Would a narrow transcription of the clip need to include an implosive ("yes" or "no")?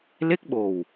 yes